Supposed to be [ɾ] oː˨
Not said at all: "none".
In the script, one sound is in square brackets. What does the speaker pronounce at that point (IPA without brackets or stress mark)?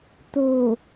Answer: t